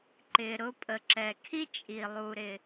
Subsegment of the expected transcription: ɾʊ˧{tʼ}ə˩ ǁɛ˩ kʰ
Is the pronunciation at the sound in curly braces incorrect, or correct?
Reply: incorrect